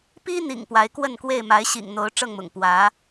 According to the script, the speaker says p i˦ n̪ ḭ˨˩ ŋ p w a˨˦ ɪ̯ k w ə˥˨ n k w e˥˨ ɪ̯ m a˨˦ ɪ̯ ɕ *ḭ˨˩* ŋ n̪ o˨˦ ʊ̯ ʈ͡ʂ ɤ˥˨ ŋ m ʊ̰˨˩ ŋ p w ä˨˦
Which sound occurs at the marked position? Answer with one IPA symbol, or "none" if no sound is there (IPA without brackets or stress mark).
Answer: ḭ˨˩